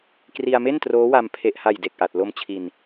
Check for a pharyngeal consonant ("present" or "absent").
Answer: absent